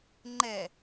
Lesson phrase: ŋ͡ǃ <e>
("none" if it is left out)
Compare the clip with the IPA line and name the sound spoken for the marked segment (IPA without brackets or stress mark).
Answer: ɛ